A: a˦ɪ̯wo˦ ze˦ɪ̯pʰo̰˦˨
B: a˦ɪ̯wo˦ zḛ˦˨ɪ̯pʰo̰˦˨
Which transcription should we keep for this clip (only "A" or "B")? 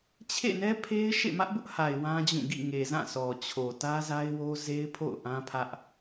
A